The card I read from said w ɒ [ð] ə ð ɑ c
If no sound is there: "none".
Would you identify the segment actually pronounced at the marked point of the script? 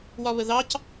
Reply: β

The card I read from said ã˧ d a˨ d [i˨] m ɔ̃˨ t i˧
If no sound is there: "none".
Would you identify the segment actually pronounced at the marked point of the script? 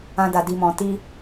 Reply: i˨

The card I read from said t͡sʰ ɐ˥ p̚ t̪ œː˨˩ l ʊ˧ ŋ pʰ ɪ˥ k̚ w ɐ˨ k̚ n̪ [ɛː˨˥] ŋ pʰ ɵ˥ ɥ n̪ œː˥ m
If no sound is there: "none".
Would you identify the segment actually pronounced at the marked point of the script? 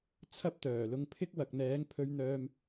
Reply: ɛː˨˥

